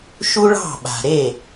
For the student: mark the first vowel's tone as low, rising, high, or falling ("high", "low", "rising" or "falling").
high